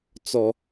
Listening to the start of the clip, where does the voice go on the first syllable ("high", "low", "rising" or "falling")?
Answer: high